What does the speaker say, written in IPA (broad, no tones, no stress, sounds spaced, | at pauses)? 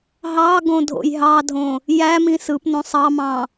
ɦ ɑ ɡ õ dʱ o̰ j ɦ ɑ dʱ õ | j æ m ĩ s ɯ p n õ sˤ ɑ m ɑ̃